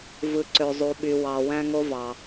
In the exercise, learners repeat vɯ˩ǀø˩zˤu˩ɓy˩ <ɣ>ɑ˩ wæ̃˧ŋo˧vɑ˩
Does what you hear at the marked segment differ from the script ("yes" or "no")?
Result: yes